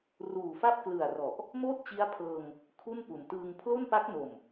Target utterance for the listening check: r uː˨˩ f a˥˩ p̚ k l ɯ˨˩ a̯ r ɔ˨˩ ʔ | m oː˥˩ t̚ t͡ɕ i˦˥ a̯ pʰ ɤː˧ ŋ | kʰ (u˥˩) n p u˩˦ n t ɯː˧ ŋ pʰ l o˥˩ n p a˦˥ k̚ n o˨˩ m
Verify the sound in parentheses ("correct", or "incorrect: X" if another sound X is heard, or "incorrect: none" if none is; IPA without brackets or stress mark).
correct